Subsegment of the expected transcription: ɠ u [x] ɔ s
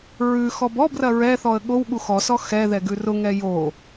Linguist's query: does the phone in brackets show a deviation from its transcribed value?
no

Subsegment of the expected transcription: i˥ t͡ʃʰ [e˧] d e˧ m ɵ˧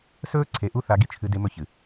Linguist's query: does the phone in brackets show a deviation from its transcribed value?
yes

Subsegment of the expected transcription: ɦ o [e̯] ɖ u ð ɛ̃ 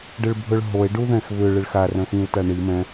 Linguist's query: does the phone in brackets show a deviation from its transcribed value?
no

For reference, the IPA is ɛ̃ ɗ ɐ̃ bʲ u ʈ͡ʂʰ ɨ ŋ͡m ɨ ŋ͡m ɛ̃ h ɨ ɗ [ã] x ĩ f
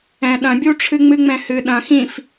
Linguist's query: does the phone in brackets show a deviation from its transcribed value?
yes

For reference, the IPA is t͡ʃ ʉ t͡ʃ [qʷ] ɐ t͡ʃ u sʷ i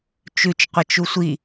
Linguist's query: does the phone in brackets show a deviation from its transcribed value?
no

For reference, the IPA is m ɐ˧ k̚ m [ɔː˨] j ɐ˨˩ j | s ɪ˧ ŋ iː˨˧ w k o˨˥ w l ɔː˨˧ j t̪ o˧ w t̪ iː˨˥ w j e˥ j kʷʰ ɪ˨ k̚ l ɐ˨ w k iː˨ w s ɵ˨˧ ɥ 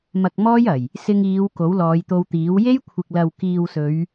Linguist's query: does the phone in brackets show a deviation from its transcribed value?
yes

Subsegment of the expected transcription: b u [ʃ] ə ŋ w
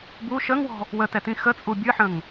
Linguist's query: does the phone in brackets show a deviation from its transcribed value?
no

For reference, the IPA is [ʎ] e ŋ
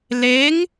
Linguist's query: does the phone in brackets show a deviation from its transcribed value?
yes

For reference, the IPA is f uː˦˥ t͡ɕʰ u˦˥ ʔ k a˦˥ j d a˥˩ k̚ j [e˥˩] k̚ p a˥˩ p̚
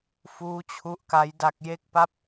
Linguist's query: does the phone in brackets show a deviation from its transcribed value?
no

